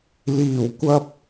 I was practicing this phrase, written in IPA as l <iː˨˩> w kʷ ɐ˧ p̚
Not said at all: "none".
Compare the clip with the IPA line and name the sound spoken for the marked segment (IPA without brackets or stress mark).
iː˨˩